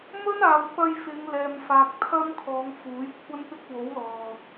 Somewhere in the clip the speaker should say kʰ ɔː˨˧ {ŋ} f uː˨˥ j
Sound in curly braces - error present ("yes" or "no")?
no